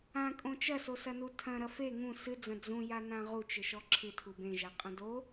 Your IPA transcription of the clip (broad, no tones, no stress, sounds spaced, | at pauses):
ã kʼ õ t͡ʃ ɐ s o s ɐ n u tʰ ɐ̃ ɾ ɐ f e ŋ ũ s ɨ d͡z ɐ̃ d͡z ũ j a n ã ʁ u t͡ʃ ɘ ʃ ɔ ǁʰ ɨ tʰ u b ẽ ʒ a qʼ ɐ̃ d o